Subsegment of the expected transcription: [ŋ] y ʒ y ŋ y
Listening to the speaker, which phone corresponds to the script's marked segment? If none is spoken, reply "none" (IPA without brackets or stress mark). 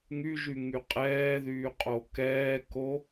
ŋ